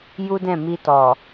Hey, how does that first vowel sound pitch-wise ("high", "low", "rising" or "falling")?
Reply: high